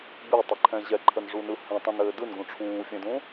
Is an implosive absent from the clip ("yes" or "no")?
yes